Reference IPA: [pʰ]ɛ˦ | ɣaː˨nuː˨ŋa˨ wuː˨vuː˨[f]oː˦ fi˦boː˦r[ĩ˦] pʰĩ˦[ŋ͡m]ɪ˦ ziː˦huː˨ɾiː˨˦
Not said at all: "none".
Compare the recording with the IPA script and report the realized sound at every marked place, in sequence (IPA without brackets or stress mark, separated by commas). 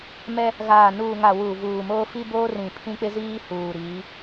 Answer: m, m, ĩ˨, k͡p